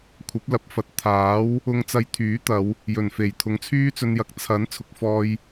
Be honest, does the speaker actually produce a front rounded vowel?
yes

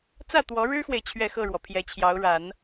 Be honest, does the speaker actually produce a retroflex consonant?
yes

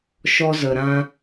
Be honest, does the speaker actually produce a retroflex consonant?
no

